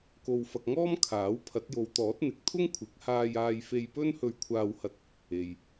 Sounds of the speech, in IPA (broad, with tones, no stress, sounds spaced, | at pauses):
k o˧ w f ɐ˧ k̚ ŋ ɔː˥ m kʰ aː˨˥ w pʰ ɐ˨˥ t̚ j o˨˧ w t̪ ɔː˨˥ t̚ n̪ ɪ˨ k̚ t̪ʰ ʊ˥ ŋ kʷʰ ɪ˨˥ k̚ h aː˧ j aː˧ j f e˧ j p ɵ˥ n h ɵ˧ ɥ kʷʰ aː˧ w h ɐ˧ t̚ | e˨ j